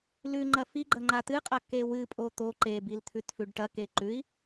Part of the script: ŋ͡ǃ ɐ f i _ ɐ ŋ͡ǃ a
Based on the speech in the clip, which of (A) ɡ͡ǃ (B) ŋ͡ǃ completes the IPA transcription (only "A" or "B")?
A